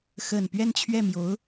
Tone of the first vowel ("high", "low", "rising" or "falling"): low